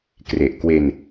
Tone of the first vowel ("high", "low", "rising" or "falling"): low